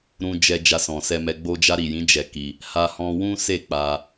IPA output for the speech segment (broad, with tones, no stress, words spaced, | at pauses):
ɾũ˧d͡ʒɛ˧ d͡ʒa˧sɔ̃˨sɛ˧mɛ˧ ɡ͡bo˧d͡ʒa˧ɾi˨jĩ˨˦ d͡ʒɛ˧ki˧ | ha˧hɔ̃˧wũ˦ se˦˨k͡pa˧